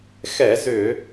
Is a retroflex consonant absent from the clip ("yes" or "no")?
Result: yes